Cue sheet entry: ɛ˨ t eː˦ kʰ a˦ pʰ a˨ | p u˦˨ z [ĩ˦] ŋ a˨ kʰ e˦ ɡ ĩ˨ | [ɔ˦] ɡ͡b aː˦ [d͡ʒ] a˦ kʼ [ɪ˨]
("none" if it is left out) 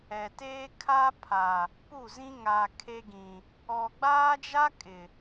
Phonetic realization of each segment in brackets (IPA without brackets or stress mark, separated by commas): ĩ˦, ɔ˨, d͡ʒ, ɪ˨